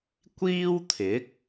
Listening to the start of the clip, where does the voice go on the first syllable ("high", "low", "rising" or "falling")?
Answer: high